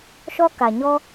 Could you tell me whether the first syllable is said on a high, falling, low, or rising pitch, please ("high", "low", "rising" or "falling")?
high